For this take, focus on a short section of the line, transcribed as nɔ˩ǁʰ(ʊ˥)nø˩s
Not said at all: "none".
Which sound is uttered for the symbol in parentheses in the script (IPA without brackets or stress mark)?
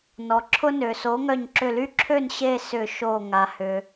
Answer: ʊ˥